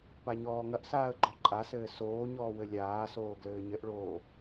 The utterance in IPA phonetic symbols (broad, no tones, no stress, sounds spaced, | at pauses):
p a ɲ ɔː ŋ ɐ ʔ s aː ə̯ ɡ͡ǃ ɔ ǃʼ a s ɘː s oː ɲ ɔː w ɘ lʲ aː s oː ɡ l ɘː ɲ ɘ ʔ ɭ oː